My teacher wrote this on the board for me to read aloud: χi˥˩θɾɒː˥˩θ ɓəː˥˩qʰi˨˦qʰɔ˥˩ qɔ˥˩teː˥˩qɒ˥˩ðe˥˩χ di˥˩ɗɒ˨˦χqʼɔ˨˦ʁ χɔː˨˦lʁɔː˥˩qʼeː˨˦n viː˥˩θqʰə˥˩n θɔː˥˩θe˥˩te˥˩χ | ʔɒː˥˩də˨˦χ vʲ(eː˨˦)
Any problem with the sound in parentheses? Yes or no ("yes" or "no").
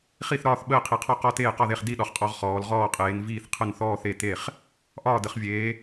no